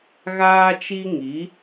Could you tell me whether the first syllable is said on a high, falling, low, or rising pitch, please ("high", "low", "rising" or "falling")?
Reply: high